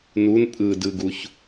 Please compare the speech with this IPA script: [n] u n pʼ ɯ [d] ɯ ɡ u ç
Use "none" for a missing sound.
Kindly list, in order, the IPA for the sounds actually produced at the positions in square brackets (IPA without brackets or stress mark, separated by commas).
n, d